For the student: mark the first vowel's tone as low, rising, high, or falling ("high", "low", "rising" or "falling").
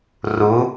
rising